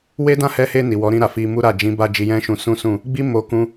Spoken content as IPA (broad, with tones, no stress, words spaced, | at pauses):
we˦dã˦˨hɛ˧he˧ ni˨wɔ˨˦ɾĩ˧ɾa˨ fi˧mu˦ɾa˦˨ d͡ʒĩ˨˦ba˧ d͡ʒi˧jɛ̃˦ʃũ˧ sũ˦sũ˦˨ | ɡ͡bi˦mo˧ kũ˦